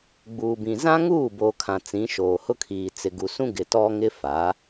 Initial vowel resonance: oral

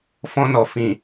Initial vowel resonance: nasal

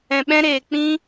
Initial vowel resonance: nasal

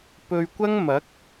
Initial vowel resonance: oral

